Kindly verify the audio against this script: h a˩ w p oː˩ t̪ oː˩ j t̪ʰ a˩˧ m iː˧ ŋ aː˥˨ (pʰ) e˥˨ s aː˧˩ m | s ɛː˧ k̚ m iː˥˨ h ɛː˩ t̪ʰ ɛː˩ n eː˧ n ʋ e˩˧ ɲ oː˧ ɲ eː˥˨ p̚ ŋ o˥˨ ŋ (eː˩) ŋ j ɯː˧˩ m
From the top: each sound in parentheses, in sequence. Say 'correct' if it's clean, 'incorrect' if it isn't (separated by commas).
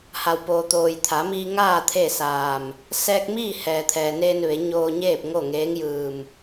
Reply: incorrect, incorrect